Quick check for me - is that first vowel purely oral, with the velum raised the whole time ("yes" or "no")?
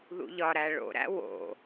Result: yes